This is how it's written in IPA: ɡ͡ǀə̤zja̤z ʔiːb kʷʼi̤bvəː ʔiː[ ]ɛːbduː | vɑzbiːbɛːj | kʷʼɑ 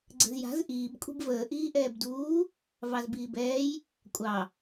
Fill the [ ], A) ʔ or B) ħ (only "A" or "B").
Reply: A